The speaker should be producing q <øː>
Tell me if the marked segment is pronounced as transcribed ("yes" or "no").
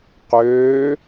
yes